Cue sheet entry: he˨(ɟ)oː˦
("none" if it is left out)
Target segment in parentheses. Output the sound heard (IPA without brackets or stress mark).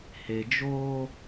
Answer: d͡ʒ